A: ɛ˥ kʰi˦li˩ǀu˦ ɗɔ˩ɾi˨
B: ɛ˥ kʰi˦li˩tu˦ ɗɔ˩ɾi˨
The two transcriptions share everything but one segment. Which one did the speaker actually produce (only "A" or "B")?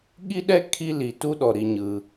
B